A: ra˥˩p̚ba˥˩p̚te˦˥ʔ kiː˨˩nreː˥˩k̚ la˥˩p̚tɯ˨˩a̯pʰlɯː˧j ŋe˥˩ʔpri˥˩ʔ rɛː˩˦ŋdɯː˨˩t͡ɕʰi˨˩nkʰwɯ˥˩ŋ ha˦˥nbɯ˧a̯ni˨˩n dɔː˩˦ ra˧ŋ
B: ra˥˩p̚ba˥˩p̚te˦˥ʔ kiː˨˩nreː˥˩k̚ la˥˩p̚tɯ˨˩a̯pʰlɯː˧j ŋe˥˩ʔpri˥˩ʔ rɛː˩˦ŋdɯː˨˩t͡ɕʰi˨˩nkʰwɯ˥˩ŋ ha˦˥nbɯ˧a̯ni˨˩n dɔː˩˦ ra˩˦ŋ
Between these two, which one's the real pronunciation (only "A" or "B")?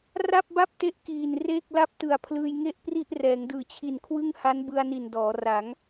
B